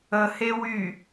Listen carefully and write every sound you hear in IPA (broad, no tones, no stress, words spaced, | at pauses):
əhe wy